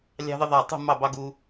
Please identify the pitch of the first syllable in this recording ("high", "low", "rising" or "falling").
high